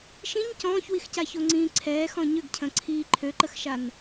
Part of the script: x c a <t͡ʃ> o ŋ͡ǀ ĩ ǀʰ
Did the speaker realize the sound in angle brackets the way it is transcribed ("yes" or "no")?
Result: no